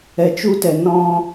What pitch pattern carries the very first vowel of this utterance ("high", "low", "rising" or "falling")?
low